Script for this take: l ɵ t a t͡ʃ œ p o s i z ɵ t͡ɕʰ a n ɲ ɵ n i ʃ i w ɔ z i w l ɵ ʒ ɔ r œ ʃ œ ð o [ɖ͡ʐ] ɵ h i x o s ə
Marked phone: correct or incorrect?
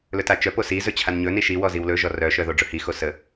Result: correct